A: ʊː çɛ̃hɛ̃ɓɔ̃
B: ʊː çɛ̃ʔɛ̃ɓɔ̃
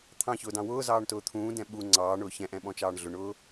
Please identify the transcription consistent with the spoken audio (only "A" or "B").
B